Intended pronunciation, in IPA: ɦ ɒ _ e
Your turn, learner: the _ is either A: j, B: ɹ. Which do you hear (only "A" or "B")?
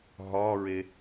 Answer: B